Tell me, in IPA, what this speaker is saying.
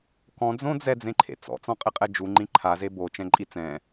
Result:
k ɔ̃ d͡z õ d͡z ɛ d͡z ẽ ǃʰ ḛ t͡s ɔ̰ t͡s ɔ̃ qʼ ɪ qʼ ɛ d͡ʒ u ŋ͡ǃ ĩ ǃʰ a z e b o t͡ʃ ɛ̃ ǃʼ i t͡s ɛ̃

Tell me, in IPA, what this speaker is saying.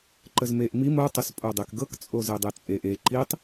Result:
ǃ ə z m e ʔ m i m o tˤ ə s pʼ o dˤ e k ɡ ɤ k t͡sʼ o z e dˤ e t͡sʼ e ʔ e ǃ i tˤ

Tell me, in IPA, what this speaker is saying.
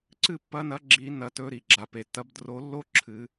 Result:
ǀ ɨ˥˩ pː ɐ˨˦ n ɐ˨˦ ɡ͡ǁ i˨˩˦ n ɐ˨˩˦ t ɵ˨˦ ɾ i˩ ɡ͡ǁ a˩ p e˩ t ɐ˨˦ b d r o˨˦ lː o˥ ǁʰ ɨ˨˩˦

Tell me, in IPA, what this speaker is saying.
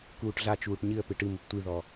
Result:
k uː ʈ ɮ a t͡ʃ uː ʈ ɲ ɨ ə̯ p ɨ ʈ ɨ m u p tʷ ɨ ð ɔ

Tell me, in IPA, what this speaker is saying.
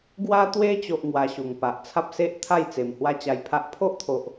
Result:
ɡ w a˧ t̪ w e˧ t͡ɕ o˦ ʔ ŋ w a˧ ɕ u˨˩ ŋ p a˨ ʔ t͡sʰ a˦ p̚ s e˦ ʔ t̪ʰ a˥˧ j t͡s e˨˩ m h w a˥˧ t͡ɕ a˧ j pʰ a˦ ʔ pʰ o˦ ʔ t̪ʰ o˨ ʔ

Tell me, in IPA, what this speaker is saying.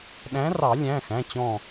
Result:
ɗ æ̃˨˥ r ɑ˨˩˦ lʲ æ̃˩˧˩ x æ̃˩˧˩ t͡ɕ ɔ̃˧˩

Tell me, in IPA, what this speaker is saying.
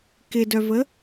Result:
k ɪ d œ v ə

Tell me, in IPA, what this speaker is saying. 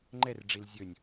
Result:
ŋ͡ǃ ɛ r ɖ͡ʐ i l zʲ ɵ nʲ

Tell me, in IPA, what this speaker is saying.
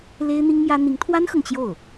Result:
l e˥ ɪ̯ n̪ i˥ ŋ m j ä˥ n̪ i˧˥ ŋ t̪ʰ w a˥ n x ɤ˨ ŋ t͡ɕ j o˥˩ ʊ̯

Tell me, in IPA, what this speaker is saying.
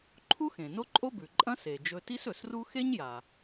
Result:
ǃʰ u˥ x ẽ˩ n o˥ ǃʼ o˥ b ʉ˩ ǃʼ ɐ̃˥ s e˩ d͡ʒ ɵ˧ t i˥ s ɵ˩ s r u˥ x e˥ ɲ j a˩

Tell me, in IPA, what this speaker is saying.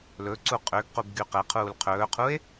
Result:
l ɵ ǀ u qʼ ø ɡ q u b ɡ y q ɛ qʰ uː l qʰ ɵː qʰ u e̯

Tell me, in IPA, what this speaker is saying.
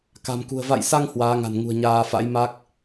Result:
k a̤˨˩ m k ṳ˨˩ ə̯ v a̰˧˨ j s a˧ ŋ h w aː˨˦ ŋ a̤˨˩ n ŋ ṳ˨˩ ə̯ ɲ aː˧ f a̰˧˥ j m a˦˥ k̚

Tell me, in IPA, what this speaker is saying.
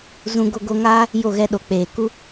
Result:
z ũ˧ ɡ o˧ ɡ o˧ ŋ aː˦ | j o˦˨ ɣ ɛ˧ ɗ o˨ k͡p eː˨ k u˧

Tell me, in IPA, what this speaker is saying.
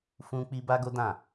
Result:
f ũ˦ k͡p i˦ b a˦ ɡ o˦ d ã˦˨

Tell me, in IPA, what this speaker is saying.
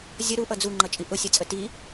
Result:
zʲ ʌ ɾ u ʔ ʌ d͡z u ŋ͡ǃ ʌ t͡ʃʼ i ʔ ʊ sʲ ʌ t͡sʼ ə t i

